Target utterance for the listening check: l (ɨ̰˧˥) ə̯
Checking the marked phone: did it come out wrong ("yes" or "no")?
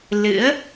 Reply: no